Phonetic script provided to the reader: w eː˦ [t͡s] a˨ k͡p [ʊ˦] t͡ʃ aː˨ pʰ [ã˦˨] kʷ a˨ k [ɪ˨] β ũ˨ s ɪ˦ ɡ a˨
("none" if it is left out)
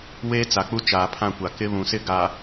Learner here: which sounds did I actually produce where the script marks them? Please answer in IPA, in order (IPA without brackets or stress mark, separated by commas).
t͡s, u˦, ã˦˨, ɪ˦